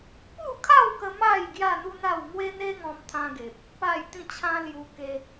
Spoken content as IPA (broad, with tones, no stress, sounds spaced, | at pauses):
p u˥˧ kʰ a˥˧ w k ə˧ m a˥˧ j ɡ j a˥˧ n̪ u˦ n̪ a˥˧ w ŋ w e˦ n̪ e˦ ŋ ɔ̃˧ m t̪ʰ ã˦ ɡ e˨ p̚ | p a˥˧ j t̪ ĩ˥˧ t͡ɕʰ ã˦ l j u˧ k e˧